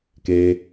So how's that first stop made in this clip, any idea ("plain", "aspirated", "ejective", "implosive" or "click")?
plain